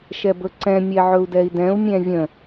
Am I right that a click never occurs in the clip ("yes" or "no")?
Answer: no